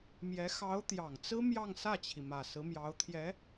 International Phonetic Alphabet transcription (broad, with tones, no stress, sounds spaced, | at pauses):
m j ɛ˧˥ x ɑ˧˥ ʊ̯ t̪ j ɑ˨˩ ŋ t͡s ɹ̩˥ m j ɑ˥˧ ŋ s ä˥˩ t͡ɕʰ i˩ m ä˨˩ s ɹ̩˧˥ m j ɑ˧˥ ʊ̯ t̪ʰ j ɛ˧˥